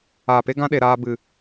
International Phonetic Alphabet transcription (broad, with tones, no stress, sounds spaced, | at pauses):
a˨ p e˦ ɡ ã˦ ɗ e˨ ɾ aː˧ b ɨ˨